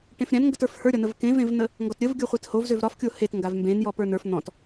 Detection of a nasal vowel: present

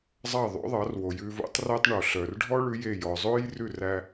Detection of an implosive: absent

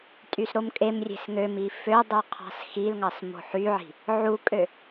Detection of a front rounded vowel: present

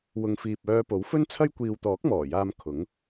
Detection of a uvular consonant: absent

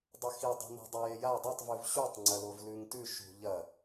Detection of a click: present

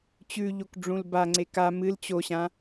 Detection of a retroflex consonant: present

